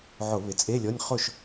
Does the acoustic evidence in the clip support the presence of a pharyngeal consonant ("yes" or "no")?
yes